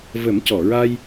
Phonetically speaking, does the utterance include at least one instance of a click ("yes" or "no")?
no